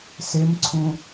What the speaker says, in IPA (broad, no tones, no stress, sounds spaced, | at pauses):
s e m ǀʰ ũ